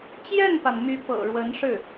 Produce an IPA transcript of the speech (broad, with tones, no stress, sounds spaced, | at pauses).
t͡ɕ j ɛ˥˩ n p a˩ n m y˥ p ɤ̰˨˩ ɻ w ə˧˥ n ʂ ɻ̩˥˩